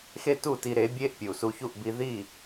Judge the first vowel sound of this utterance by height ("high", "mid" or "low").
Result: mid